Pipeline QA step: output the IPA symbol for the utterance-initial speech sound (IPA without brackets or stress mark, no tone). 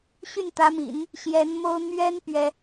ɕ